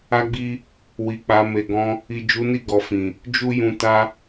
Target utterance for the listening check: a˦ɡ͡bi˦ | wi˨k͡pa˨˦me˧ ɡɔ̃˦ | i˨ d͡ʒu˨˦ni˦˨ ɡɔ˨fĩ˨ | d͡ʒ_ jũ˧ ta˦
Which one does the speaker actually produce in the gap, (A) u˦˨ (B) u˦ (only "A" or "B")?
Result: B